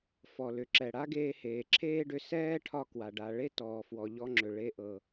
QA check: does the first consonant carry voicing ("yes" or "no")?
no